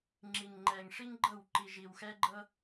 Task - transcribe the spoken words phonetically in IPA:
ŋ͡ǁ i˨ ŋ ŋ͡ǃ ɛ˨ ŋ ʂ i˦ ŋ ɡ͡ǃ ɤ˦˨ w ǃ i˨ ʒ i˨ w x ɛ˦ ɡ͡ǃ ɤ˦

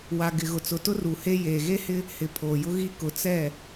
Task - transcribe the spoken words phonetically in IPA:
w a˨ ɡ ɪ˨ ɣ ʊ˨ t͡s ʊ˨ t ʊ˦ r u˨ h e˦ j eː˨ ɣ e˦ h ɪ˦ | h ɪ˨ pʰ oː˨ j ʊ˦ ɣ i˦ k ʊ˨ t͡s ɛ˦˨

